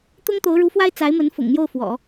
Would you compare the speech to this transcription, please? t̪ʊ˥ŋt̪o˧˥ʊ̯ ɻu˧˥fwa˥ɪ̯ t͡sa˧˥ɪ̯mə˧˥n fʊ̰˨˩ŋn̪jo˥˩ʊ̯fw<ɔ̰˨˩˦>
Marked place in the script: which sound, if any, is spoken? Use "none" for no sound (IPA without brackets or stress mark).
ɔ̰˨˩˦